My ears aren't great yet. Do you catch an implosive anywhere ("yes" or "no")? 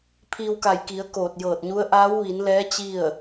no